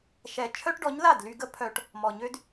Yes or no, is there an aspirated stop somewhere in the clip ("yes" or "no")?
yes